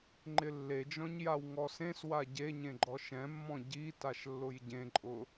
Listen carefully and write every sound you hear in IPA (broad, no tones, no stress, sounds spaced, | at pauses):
ŋ͡ǃ ɪ lː e d͡ʒ ɔ̃ ɲ j a w ŋ ɔ s ẽ s w a ɟ e ɲ ẽ ɡ͡ǃ ɔ ʃ ɛ̃ mː ɔ̃ ɟ i t a ʃ lː ʊ j ɟ ẽ ǃʼ ʊ